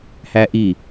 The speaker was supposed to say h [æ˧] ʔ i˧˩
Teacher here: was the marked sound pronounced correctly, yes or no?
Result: yes